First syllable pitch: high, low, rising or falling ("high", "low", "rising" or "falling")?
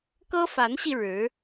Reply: high